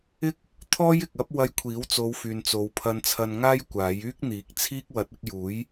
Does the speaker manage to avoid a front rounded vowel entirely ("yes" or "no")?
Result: no